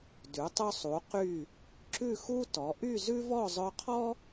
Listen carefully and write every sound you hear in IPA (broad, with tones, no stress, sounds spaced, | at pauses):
d ʉ˩˧ tˤ ʉ˧ sˤ u˩˧ q y˧˩ | ǁ ʉ˥˧ x u˥ t ɔ˩˧ ʔ y˥˧ z ʉ˥ v ɔ˥˧ zˤ œ˧ qʰ ɔ˥